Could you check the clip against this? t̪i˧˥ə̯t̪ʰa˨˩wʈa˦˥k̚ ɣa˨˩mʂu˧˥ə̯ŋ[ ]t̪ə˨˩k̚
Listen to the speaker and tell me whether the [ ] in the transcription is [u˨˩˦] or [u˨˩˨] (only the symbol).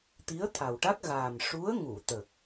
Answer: u˨˩˨